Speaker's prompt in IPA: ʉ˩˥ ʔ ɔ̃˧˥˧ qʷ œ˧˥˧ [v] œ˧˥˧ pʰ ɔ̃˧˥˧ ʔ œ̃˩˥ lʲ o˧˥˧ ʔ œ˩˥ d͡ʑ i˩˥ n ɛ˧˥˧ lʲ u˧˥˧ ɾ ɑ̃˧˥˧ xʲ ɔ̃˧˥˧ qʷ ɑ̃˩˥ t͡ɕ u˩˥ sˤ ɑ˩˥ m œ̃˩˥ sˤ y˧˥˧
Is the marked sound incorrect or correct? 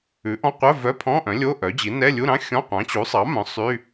correct